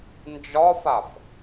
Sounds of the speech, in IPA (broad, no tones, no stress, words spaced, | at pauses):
nd͡ʒɒfaf